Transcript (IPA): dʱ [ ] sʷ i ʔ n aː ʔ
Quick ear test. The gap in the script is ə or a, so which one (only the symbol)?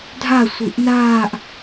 a